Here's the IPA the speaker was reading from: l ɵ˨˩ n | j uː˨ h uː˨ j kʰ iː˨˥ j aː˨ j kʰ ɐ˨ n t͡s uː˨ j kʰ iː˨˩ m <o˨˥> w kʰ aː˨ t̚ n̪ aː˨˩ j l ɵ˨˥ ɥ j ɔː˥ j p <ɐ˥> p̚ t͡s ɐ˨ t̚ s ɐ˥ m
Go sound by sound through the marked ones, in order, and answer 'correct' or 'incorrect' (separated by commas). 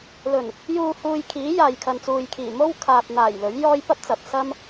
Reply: incorrect, correct